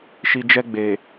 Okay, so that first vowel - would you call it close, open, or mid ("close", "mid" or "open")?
close